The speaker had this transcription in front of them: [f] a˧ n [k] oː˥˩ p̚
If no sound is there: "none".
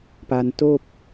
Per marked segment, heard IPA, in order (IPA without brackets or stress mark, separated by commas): p, t